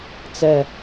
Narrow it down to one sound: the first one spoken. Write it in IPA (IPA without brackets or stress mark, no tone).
t͡s